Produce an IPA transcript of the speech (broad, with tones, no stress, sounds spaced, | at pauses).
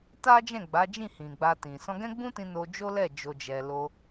t a˦ d͡ʒ ɛ̃˦˨ ɡ͡b a˨˦ d͡ʒ ĩ˦˨ h ĩ˨ ɡ͡b a˧ t ĩ˨ s ɔ̃˧ ɡ ɛ̃˦ ɡ͡b ũ˦ t ĩ˧ n o˧ d͡ʒ o˦ l ɛ˦˨ d͡ʒ o˧ d͡ʒ ɛ˧ l o˧